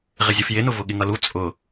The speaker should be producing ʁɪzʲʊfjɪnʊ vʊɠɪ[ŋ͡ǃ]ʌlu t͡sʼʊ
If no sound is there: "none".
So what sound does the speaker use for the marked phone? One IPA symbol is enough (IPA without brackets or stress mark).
ŋ